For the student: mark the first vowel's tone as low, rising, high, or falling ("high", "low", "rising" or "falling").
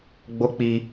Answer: high